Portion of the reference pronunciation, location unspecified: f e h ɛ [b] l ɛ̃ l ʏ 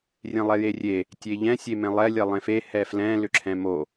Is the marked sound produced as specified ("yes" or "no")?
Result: no